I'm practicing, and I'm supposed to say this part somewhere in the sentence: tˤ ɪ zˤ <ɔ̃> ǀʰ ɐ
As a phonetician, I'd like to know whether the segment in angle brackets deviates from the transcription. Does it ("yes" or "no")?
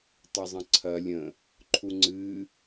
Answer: yes